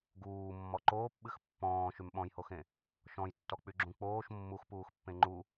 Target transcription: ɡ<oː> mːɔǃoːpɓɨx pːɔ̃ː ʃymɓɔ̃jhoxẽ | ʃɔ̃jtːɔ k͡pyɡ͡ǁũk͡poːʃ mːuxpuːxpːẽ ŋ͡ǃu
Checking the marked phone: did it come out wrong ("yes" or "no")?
yes